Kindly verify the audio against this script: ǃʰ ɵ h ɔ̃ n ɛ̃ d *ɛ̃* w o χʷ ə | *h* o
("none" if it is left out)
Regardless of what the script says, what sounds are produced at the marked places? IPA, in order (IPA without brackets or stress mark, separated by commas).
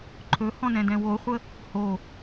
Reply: ɛ̃, h